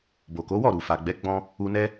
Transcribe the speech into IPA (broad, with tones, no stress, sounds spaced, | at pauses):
b o˨ k o˨˦ w ɔ˦˨ ɾ u˨ f a˨ ɡ͡b ɛ˨˦ ɡ͡b ɔ̃˧ | u˧ n ɛ˦